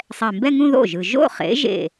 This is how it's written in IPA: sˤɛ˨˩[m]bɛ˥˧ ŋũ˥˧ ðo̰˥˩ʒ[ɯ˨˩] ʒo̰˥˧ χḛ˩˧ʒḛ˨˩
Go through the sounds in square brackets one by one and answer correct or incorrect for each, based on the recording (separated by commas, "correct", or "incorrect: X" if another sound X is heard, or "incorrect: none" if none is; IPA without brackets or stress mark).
correct, correct